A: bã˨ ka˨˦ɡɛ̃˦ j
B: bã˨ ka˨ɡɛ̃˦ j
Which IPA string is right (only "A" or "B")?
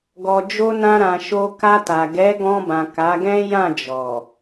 A